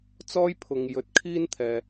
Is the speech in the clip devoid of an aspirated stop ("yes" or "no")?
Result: no